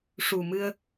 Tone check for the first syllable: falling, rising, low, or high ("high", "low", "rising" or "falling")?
low